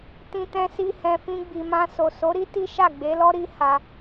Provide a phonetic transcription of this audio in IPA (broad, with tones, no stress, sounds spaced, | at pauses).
t ĩ˧ t ɛ̃˧ s i˧ h ɛ̃˨ f ĩ˧ ɡ͡b i˨ m ã˧ s o˨ s o˨˦ ɾ i˦ t i˦ ʃ a˦˨ ɡ͡b e˨˦ l ɔ˦ ɾ i˦ h a˧